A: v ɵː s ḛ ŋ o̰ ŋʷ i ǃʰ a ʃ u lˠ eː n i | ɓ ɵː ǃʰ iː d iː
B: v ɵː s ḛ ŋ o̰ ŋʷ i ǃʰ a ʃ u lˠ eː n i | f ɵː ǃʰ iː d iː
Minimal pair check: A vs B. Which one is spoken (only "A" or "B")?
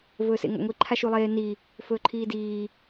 B